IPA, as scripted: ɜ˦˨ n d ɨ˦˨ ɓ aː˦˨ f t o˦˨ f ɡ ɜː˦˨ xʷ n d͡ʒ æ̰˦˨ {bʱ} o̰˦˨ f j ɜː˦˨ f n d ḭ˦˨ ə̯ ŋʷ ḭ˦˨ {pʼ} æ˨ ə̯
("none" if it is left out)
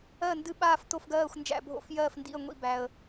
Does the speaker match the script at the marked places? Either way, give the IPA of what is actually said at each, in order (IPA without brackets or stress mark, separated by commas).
bʱ, b